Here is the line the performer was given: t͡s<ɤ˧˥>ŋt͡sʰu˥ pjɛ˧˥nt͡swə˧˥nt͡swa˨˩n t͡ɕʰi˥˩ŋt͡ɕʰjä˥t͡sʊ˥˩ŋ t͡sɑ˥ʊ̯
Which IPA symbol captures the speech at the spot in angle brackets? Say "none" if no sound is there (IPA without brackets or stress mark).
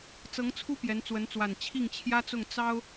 ɤ˧˥